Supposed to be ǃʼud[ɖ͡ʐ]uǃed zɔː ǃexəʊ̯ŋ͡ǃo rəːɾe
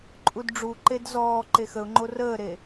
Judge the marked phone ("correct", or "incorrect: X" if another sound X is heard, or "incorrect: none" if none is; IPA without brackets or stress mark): correct